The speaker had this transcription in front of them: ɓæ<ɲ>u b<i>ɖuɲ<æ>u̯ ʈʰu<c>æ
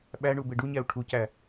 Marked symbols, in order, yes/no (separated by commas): no, no, yes, yes